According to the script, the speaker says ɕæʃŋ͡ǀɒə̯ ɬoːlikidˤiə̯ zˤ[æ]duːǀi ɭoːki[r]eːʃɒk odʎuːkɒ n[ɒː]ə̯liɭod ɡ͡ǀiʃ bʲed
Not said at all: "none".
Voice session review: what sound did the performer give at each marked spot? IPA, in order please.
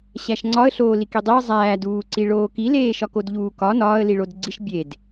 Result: æː, l, ɒː

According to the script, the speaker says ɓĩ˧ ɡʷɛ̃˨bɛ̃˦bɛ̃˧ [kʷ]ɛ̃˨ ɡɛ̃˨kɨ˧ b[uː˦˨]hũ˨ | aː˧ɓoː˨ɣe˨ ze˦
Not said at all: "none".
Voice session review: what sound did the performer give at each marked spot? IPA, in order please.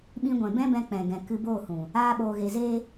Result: k͡p, oː˦˨

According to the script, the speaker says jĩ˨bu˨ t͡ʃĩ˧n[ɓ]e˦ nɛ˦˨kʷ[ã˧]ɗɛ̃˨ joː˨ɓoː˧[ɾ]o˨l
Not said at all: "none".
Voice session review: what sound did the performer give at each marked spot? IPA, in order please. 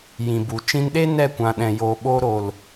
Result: ɗ, ã˨, ɾ

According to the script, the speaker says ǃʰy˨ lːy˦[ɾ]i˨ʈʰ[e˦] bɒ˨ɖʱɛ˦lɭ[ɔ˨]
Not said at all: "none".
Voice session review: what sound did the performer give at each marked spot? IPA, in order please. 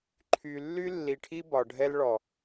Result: lː, i˦, ɔ˨

